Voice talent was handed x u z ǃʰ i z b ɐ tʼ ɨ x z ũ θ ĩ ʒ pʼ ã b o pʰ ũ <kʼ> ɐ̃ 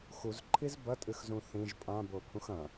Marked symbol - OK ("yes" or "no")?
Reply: no